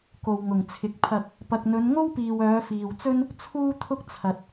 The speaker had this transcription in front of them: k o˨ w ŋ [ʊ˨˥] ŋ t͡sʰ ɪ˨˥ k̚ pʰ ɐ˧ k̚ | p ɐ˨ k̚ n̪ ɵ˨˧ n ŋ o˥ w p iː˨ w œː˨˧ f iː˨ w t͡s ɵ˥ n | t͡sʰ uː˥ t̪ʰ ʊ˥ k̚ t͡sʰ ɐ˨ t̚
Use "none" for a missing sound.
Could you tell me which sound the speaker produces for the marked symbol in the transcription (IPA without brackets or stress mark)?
ʊ˨˩